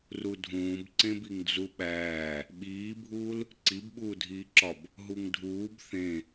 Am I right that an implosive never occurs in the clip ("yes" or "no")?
no